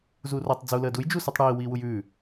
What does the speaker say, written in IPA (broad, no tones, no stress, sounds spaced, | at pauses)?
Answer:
z uː r o tˤ d͡z u l əː d u j d͡ʒ u s u tˤ ɽ iː w iː w u j ʉː